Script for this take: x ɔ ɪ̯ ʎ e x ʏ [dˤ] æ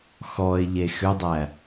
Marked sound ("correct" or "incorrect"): correct